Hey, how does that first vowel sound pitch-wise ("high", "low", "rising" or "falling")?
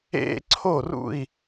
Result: high